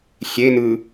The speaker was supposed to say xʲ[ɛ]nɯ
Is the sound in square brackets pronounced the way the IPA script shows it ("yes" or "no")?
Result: no